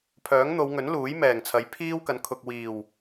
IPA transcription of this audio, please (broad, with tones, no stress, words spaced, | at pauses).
pʰœː˨˥ŋn̪o˨˧w ŋɵ˨˥n luː˨˥jmɛː˨˩ŋt͡sʰɐ˨˥j pʰiː˥wkɐ˨˥nkʰʊ˨k̚ wiː˨˩w